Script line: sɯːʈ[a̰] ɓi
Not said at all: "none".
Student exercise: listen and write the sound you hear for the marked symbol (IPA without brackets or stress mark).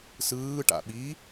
a̰